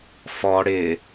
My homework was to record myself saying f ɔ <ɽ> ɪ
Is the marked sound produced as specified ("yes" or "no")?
yes